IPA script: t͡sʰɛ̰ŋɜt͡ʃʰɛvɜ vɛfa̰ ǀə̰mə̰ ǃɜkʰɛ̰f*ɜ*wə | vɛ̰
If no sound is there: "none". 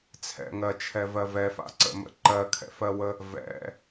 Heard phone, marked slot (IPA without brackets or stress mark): ɜ